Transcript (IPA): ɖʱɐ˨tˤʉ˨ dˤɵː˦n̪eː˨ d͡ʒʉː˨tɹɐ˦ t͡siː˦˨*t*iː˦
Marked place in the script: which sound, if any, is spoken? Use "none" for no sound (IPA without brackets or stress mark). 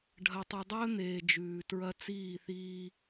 θ